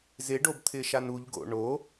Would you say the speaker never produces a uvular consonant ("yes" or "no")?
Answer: yes